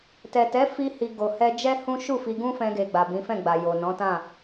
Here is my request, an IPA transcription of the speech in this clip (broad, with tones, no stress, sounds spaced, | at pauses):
t ɛ˨ t ɛ˨˦ f i˧ h i˨ ɡ o˨ h ɛ˧ d͡ʒ ɛ˦ h ũ˦ ʃ u˦˨ f i˧ ɡ ũ˦ f ɛ̃˧ ɡ e˨ ɡ͡b a˨ b ĩ˨˦ f ɛ̃˦˨ ɡ͡b a˨ j o˨ n ɔ̃˨˦ t ã˦˨